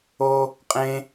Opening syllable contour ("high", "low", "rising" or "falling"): high